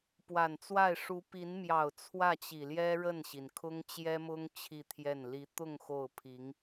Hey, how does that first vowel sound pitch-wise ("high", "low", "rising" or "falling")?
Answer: low